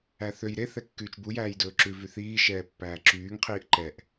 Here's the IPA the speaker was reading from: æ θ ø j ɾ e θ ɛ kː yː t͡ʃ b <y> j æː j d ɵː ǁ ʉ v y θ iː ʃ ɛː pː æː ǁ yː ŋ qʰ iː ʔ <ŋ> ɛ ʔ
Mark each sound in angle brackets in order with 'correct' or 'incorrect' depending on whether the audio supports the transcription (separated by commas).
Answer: incorrect, incorrect